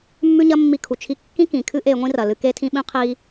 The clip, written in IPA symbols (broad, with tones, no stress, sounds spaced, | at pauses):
mː ʉ˥ ɲ ɐ˥ mː i˧ kʰ u˩ t͡ʃʰ i˧ kː ĩ˥ k ĩ˩ kʰ ɨ˥ ʔ e˧ ŋʷ ĩ˥ r ɐ˩ l ɨ˧ k e˥ tʰ ĩ˥ ɓ ĩ˥ qʰ i˧